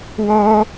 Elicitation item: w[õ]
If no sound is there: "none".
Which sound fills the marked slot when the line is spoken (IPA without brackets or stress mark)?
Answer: o